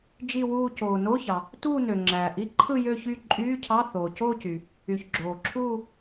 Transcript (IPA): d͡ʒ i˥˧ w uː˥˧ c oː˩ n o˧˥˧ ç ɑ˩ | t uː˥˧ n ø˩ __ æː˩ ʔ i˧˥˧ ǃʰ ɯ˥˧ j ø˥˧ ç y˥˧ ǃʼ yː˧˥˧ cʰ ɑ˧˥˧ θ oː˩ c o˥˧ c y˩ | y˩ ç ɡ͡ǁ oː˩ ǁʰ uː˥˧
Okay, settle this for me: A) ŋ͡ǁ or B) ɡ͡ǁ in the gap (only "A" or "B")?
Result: A